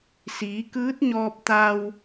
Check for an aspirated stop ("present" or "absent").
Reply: absent